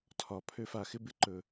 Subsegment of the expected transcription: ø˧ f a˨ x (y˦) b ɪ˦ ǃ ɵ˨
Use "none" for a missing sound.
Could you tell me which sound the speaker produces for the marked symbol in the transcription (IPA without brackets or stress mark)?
ɪ˦